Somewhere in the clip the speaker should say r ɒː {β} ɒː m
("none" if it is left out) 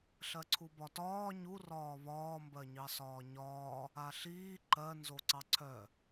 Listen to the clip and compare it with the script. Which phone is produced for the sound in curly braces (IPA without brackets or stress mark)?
β